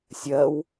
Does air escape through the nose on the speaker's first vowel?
no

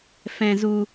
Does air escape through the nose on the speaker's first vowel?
yes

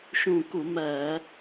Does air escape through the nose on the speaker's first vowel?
yes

